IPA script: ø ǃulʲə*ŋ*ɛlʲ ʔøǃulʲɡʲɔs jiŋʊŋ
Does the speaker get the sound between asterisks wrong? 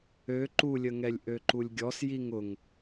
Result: no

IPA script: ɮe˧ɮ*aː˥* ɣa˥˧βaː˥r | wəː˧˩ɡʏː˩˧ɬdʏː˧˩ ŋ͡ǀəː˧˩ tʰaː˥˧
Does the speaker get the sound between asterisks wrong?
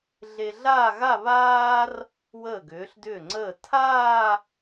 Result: yes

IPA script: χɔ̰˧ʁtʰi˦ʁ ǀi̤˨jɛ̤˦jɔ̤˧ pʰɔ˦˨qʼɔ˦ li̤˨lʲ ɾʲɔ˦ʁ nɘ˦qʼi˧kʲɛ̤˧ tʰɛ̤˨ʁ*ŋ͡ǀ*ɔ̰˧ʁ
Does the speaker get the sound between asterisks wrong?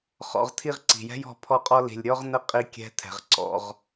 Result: yes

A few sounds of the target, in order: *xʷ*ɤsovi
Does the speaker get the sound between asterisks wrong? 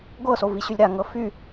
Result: yes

